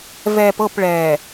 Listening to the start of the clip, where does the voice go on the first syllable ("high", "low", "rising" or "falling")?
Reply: low